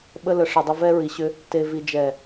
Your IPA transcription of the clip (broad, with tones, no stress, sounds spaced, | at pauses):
ɓ ə˧ l ə˨ ʂ ə˨ dˤ ɘ˧ v ɛ˧ ɹ i˨ ɕ ʏ˧ | t e˨ v i˨ d͡ʒ ɛ˨